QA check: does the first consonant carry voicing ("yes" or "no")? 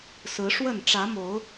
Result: no